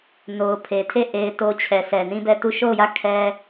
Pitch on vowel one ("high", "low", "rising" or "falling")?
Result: low